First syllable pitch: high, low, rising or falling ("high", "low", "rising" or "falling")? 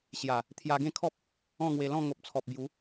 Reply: low